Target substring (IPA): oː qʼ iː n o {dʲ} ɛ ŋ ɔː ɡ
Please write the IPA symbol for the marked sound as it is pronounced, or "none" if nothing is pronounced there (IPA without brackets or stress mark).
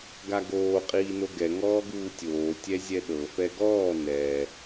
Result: ɡ